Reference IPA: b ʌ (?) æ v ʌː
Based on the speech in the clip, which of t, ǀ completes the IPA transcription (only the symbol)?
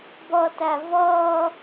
t